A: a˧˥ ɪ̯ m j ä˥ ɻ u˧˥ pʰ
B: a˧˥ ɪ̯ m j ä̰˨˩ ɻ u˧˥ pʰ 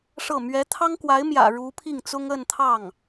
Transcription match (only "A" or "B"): B